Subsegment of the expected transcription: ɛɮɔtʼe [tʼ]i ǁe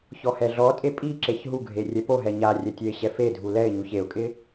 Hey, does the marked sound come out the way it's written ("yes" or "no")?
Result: no